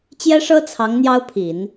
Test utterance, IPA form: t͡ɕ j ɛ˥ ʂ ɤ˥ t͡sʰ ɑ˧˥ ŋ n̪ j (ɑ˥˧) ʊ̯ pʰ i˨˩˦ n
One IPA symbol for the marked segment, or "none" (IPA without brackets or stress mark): ɑ˥